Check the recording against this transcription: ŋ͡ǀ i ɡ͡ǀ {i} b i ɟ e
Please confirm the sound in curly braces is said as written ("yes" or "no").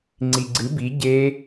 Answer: no